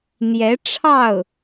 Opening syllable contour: rising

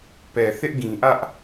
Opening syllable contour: low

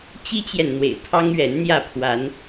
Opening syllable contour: high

